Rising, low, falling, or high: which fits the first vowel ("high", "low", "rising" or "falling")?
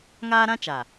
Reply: high